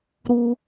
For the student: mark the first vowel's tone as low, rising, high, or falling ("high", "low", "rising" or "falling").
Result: high